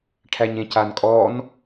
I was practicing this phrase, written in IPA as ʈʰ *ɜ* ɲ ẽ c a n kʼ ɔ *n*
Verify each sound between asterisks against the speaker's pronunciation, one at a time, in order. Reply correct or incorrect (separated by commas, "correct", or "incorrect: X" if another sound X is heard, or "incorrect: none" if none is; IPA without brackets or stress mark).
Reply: incorrect: æ, correct